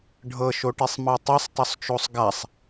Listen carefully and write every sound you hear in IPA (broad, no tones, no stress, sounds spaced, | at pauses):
ɖʱ ɤ ʃ o ʈ e sˤ m ɤ tˤ i sˤ tˤ o sˤ t͡ʃ o sˤ ɡ a sˤ